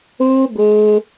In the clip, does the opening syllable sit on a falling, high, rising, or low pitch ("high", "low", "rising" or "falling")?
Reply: high